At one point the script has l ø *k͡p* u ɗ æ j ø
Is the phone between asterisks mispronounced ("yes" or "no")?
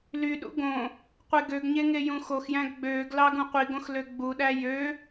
yes